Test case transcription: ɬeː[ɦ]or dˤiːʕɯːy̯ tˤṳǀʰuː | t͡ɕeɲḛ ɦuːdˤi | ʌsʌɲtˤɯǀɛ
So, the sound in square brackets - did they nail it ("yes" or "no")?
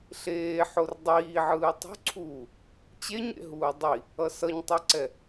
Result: no